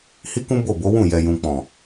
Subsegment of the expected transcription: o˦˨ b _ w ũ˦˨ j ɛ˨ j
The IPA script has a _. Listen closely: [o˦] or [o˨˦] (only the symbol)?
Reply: o˨˦